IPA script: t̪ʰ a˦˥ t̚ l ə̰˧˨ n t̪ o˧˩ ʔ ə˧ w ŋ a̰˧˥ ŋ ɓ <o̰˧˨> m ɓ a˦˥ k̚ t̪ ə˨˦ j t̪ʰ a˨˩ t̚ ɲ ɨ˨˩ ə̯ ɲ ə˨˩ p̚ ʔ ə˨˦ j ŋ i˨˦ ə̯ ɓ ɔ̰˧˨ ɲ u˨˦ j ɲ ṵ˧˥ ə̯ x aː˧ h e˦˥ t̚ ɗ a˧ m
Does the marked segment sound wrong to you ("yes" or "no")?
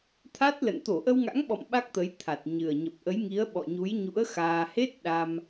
yes